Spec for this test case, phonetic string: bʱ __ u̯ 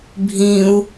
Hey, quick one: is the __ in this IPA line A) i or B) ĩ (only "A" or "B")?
B